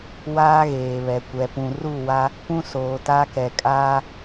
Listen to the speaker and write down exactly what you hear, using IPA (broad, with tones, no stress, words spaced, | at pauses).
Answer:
waː˦ɣeː˨βɛ˨ kʷɛ˨pũ˨ru˦˨wa˦ | pũ˦soː˨ta˦kɛ˨ kʼaː˦